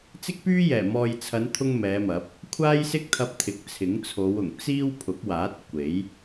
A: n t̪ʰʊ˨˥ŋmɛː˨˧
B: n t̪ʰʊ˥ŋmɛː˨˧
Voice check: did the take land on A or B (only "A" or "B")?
B